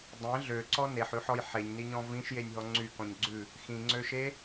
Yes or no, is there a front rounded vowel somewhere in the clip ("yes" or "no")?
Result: yes